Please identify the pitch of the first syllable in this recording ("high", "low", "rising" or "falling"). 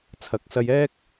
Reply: rising